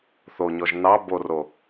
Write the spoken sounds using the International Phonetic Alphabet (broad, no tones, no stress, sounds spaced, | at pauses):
θ o ɲ ɔ ʒ n ɑ b o r o